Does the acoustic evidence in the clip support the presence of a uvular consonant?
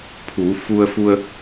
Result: no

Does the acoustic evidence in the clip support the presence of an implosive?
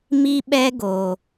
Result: yes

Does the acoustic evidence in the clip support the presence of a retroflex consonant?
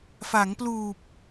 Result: no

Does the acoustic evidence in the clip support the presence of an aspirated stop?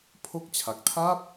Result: yes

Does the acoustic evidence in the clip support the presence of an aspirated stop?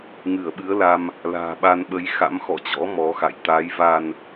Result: no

